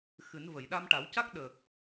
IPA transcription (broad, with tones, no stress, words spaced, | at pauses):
xɨ˨˩˦n və˨˩˨jɗa˧mʈa˨˩˦wca˦˥k̚ ɗə˨˩k̚